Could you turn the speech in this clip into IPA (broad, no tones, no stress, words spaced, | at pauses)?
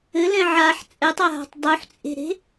ɘlɛ̃ ʕaħ t͡sʼɛtˤaɦa̤tˤ dˤuħt͡sʼe̤ɾe̤